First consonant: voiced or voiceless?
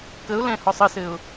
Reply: voiceless